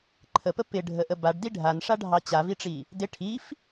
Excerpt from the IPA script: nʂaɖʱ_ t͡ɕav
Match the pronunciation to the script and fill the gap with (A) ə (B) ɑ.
B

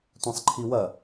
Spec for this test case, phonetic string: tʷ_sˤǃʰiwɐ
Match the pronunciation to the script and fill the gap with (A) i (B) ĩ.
B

